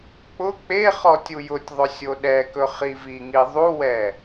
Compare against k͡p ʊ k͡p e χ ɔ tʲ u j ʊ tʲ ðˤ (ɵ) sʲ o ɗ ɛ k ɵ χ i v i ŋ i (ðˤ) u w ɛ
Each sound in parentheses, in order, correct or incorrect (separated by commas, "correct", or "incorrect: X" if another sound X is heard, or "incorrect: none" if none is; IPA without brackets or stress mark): correct, correct